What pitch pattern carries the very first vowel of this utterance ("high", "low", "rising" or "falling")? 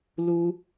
high